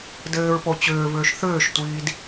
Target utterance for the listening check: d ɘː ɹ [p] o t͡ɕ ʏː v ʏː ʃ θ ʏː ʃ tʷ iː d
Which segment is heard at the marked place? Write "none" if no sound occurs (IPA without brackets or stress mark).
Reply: p